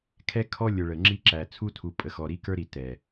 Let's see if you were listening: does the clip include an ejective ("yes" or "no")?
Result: yes